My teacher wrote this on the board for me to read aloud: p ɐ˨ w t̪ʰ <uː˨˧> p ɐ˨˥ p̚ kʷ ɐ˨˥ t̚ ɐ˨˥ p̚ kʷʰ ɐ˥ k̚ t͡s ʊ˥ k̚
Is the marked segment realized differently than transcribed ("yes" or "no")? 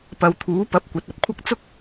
yes